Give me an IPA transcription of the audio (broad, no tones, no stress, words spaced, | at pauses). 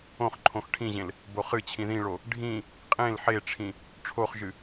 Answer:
õχǃʰõx ʈʰĩʑẽl | boχɨt͡ɕʰĩ ðĩɭo | ɖʱĩ | qʼẽl ħeʈ͡ʂʰĩ | ʈ͡ʂʰoχʒɨ